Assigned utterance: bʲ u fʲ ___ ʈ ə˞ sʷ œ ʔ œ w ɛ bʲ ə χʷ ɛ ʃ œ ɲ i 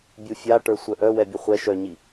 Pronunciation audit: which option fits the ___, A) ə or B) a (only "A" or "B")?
B